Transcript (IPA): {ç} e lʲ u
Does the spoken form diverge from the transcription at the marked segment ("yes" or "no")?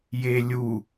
yes